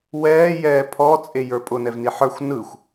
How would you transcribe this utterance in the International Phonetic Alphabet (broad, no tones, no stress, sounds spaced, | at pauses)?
w ɛː j ɛː pʰ ɔ t͡sʼ e j ə˞ pʼ ʊ n ɛ v n i ħ ə˞ xʷ n ɯ xʷ